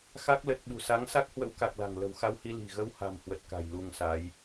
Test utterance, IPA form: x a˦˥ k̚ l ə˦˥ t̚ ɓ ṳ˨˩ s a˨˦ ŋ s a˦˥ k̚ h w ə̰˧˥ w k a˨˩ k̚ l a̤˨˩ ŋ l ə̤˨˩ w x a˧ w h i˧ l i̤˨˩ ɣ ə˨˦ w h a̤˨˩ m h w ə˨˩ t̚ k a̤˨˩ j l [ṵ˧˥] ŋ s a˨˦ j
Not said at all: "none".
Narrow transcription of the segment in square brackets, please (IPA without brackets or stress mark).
u˧